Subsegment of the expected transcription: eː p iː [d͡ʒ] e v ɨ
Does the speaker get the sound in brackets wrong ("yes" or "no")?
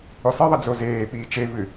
yes